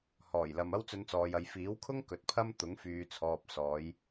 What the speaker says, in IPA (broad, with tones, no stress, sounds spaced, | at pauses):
h ɔː˨˩ j l ɐ˨ m ɐ˥ w t͡s ɵ˧ n t͡s ɔː˨ j ɐ˨ j f iː˨˥ w kʰ ʊ˥ ŋ k ɵ˨ t̚ pʰ ɐ˥ m t̪ ʊ˨˥ ŋ f yː˨ t͡sʰ ɔː˨ p̚ s ɔː˨˧ j